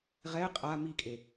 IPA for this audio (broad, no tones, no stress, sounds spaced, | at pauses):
ʁ ɛ ɪ̯ qʼ a m i kʼ e